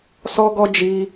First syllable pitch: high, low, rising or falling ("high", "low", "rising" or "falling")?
high